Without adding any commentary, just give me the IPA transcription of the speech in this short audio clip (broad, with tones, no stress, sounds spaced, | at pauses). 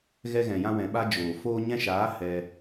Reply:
ɣ ɛ˧ ɣ ɛ̃˨ j ã˧ w ɛ̃˨ ɓ a˧ d͡ʒ oː˨ f oː˧ ɲ ɛ̃˧ ʃ aː˨˦ h ɛ˧